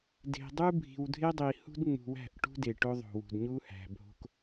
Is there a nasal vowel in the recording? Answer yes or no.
no